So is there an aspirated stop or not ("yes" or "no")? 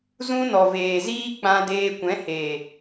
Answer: no